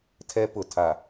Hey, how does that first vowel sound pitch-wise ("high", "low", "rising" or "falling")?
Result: high